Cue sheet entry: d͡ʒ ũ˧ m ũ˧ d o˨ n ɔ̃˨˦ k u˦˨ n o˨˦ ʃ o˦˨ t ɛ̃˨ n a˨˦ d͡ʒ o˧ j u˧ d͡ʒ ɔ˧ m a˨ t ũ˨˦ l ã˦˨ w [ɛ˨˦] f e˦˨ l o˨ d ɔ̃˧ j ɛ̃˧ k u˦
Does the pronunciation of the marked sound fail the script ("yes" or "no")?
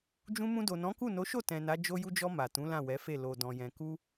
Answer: no